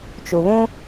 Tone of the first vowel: low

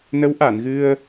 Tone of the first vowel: rising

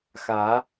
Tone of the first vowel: rising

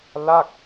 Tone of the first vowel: falling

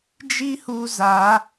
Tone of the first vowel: high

